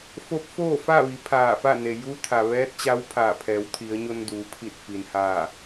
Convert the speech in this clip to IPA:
fo˧˥p̚foː˥˨ fa˥˨ʋi˩˧ pʰaː˧˩fa˥˨ne˩ ju˧˥t̪ʰa˩ʋɛː˧˥t̚t͡ɕa˧˥w pʰaː˧˩pʰɛː˩˧wt̪ʰi˩˧ə̯ ɲo˧nduː˩˧pʰi˧˩t̚ fi˩nhaː˧˩

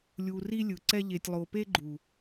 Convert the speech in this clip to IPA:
lʲu˨ ri˦lʲɯ˨ǀɛ˦ ʎe˨tʲlˠo˨pe˦ɡ͡ǃu˨

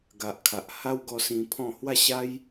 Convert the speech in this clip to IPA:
ɡa˨ʔkʰa˨ʔ ha˦wɡɔ˧ sĩ˧pʰɔ̃˥˧ hwa˥˧ɕa˦j

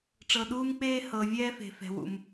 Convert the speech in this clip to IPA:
ʈ͡ʂɤ˨ɗuː˥mk͡peː˥ hɤ˨ vʲɛː˥fe̤˨fɛ̤˨wṵ˨m

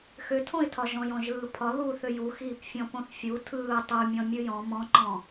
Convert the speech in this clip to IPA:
xʏtʰõɪ̯tʰɒ ʒɔ̃jɔ̃ʒɯːpʰɒ ðu θʏjuxiːp fʲɔ̃põθfʲu tʰɯː tˤumʲɔ̃ mʲɯjɔ̃ mɔ̃ǃɔ̃

